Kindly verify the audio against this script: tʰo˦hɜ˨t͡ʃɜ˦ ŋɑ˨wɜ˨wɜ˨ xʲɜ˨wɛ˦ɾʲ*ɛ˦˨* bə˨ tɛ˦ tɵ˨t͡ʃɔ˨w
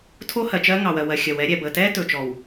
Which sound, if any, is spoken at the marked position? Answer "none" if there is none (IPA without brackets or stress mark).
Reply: ɛ˨